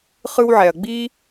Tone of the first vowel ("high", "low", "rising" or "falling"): high